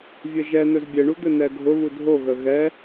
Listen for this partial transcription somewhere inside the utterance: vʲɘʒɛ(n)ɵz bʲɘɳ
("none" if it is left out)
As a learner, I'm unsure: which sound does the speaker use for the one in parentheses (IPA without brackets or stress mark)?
n